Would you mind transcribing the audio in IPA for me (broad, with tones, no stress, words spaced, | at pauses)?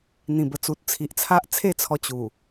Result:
n̪ĩ˨˩bə˨˩t͡su˨t̚ t͡sʰi˨ʔt͡sʰa˦ʔ t͡sʰe˥˧t͡sʰɔ˧ t͡ɕu˨˩